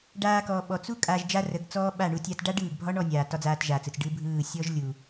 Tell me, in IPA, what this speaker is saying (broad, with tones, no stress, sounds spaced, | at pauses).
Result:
ɖ aː˧ k ɔ˨ ɓ ɔ˨ t͡s u˦ kʼ a˧ ʒ d͡ʒ a˦ r ə˨˦ ɡ t͡s ɔː˦ ɓ a˦˨ ɳ u˧ tʲ a˧ t ɖ a˦ ɖ ɯː˨ ɡ bʱ ɒ˦ ɳ ɔ˧ nʲ aː˨ t ɒ˦ d͡z aː˧ t ʒ aː˨ t͡s ɯ˨ t͡s ɖ ɯ˦ bʱ ɯː˦˨ sʲ ɔ˦ ʒ lʲ u˨